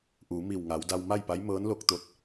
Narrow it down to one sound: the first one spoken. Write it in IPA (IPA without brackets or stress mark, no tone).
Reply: ʔ